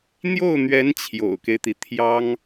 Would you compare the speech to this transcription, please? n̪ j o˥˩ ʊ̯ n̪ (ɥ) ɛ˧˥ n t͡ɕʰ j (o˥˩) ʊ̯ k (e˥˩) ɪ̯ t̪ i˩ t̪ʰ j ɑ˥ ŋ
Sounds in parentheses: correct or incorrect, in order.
correct, incorrect: o̰˨˩, incorrect: e˦

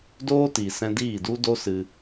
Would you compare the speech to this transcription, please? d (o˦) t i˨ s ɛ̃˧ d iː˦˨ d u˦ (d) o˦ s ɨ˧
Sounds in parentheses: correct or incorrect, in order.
incorrect: oː˦, correct

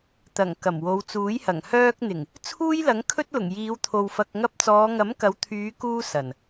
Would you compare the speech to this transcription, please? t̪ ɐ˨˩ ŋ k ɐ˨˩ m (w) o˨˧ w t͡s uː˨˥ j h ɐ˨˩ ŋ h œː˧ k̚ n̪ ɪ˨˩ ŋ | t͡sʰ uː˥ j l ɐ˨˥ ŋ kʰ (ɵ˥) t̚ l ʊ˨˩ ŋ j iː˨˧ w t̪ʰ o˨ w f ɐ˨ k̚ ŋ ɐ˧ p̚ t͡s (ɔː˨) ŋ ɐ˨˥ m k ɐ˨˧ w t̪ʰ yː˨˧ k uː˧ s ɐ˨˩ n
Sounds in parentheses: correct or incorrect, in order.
correct, correct, incorrect: ɔː˨˧

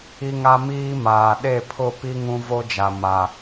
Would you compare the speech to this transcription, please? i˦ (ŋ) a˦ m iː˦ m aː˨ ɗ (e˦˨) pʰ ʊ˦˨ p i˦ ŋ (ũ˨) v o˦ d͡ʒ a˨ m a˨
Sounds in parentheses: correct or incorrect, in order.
correct, correct, incorrect: ũ˦

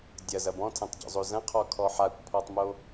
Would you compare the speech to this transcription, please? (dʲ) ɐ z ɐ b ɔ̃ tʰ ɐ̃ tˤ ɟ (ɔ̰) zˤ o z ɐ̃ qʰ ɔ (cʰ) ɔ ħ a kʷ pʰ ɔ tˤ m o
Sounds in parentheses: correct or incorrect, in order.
correct, correct, incorrect: kʰ

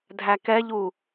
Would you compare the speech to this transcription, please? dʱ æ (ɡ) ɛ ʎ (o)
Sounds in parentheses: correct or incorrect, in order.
incorrect: k, incorrect: u

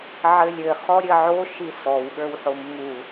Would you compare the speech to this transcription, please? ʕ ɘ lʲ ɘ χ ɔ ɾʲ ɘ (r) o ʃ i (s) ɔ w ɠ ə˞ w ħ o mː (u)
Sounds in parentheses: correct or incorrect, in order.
incorrect: ʕ, correct, correct

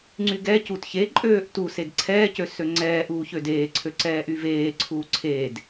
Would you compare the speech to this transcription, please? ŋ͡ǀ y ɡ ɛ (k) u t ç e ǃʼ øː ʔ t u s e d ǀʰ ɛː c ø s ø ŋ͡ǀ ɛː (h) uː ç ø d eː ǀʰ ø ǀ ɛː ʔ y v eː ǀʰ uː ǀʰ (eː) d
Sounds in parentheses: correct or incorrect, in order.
incorrect: c, incorrect: ʔ, correct

